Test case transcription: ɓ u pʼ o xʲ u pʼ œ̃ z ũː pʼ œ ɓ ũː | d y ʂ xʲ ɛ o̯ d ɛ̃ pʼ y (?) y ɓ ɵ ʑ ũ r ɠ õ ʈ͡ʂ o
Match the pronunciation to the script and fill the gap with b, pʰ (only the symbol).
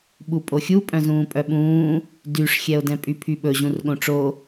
pʰ